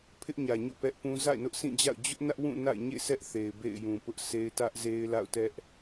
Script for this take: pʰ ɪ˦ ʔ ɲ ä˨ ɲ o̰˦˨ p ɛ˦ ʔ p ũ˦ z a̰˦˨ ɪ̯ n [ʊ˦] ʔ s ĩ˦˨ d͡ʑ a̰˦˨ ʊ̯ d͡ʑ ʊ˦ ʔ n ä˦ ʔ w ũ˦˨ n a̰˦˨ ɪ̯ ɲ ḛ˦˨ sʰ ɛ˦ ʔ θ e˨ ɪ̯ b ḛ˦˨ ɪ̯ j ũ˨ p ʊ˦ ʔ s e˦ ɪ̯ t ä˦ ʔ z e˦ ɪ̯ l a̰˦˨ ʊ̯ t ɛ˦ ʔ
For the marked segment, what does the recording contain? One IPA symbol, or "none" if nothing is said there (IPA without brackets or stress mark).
ʊ˦